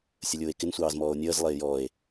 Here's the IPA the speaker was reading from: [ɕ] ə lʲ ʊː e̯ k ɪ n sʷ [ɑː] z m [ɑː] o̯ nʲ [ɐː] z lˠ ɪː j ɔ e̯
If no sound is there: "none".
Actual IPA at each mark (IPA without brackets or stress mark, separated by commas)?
sʲ, ɑː, ɔː, əː